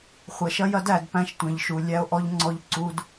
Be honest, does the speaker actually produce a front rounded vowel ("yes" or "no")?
no